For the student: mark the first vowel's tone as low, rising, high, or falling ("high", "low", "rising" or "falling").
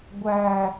low